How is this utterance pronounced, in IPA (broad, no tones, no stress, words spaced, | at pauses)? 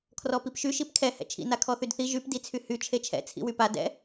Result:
kʰrɔpipʃy ʃipkʰɛ hɛ̰t͡ʃʰḭ nakʰɔθydθi ʒyp dit͡sʰyhy t͡ʃʰet͡ʃʰɛ̰ t͡sʰḭwypa dɛ̰